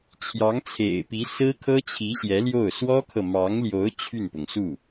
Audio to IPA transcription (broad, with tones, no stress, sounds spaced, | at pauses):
t͡ɕʰ j ɑ˧˥ ŋ t͡sʰ ḛ˨˩ ɪ̯ p i˧˥ s ɹ̩˥ kʰ ɤ˥ t͡ɕʰ i˧˥ ɕ j ɛ˧˥ l j o˥˩ ʊ̯ s w ɔ˥ kʰ ɤ˨ m ɑ˧˥ ŋ l j o˧˥ ʊ̯ t͡ɕʰ y˥˩ n p ʊ˩ ŋ s u˥˩